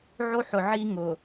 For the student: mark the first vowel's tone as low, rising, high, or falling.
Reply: high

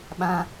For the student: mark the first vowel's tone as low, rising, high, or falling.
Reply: high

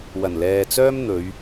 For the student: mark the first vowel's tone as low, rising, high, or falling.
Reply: low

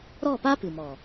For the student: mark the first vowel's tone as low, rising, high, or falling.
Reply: falling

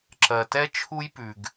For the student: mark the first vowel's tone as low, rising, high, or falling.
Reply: low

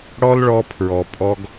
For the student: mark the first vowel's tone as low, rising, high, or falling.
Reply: high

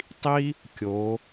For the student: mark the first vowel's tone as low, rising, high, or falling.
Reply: high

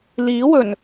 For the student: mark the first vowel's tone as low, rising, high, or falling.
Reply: rising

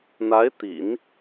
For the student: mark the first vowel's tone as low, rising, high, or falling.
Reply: rising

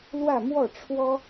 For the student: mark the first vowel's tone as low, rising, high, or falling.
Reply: falling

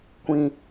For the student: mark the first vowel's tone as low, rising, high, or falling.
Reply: low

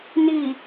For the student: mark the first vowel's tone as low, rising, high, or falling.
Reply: low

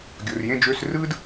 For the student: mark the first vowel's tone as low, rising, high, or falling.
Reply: low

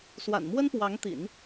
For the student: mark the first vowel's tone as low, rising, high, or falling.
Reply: low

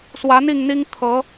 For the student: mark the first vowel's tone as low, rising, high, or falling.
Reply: rising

